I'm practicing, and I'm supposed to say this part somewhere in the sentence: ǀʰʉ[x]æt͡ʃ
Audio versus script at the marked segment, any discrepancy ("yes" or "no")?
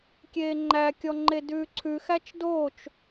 no